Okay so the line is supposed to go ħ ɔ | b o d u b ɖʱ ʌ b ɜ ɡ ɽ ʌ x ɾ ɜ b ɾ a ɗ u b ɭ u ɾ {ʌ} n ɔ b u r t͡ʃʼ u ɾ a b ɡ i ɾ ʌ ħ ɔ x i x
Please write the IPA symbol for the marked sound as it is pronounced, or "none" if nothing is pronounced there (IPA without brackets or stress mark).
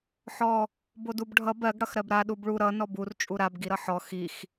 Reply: ʌ